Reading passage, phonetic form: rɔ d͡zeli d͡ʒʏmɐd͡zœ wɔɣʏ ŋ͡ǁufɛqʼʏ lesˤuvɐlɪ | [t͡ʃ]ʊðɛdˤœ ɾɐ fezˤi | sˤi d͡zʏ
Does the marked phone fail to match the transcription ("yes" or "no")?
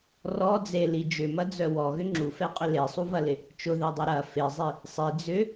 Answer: no